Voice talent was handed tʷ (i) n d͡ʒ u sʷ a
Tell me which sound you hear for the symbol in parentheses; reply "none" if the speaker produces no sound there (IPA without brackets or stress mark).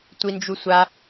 i